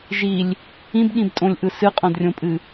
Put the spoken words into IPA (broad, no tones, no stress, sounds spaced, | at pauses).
ʒ i lʲ | ĩ b ɠ ĩ b tʼ õ lʲ ʔ ɯ s ɨ qʼ õ d rʲ õ pʼ ɨ